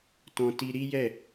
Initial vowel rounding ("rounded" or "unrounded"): rounded